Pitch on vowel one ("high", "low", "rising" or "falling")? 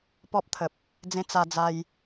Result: high